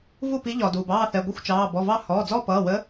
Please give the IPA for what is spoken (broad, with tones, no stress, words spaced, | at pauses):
vu˥˨pi˧˥ ʎɒ˩ duː˩bɑː˥˨θɛ˩˧˩ɡʷə˥˨xʷ t͡ʃɑː˩˧˩ bɔ˩˧˩vɑ˥˨ hɔː˩˧˩d͡zɔ˥˨pʌː˩˧˩wə˧˥